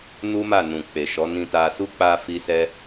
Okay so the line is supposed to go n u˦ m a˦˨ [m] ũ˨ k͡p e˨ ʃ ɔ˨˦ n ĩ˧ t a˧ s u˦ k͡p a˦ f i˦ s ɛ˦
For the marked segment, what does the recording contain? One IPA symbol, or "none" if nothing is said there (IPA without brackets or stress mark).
n